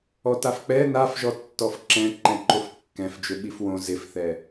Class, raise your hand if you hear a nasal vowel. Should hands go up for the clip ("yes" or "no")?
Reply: yes